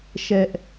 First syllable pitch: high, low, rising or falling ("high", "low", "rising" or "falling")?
high